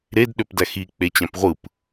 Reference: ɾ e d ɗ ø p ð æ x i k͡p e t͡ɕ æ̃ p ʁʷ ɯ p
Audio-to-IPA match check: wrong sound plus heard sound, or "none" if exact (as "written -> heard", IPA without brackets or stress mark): ð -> d